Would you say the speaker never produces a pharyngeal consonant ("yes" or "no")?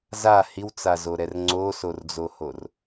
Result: yes